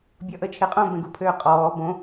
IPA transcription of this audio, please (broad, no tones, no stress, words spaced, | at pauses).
bʲɔʔət͡ʃʰeqʼõ bɛ̃ɡupʰøːqʼɔː bõ